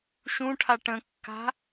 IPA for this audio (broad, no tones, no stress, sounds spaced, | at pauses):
ʃ ũ ʈʰ a ʈ ə̃ kː a̤